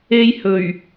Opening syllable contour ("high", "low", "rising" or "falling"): high